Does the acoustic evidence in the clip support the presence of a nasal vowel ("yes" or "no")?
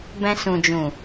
yes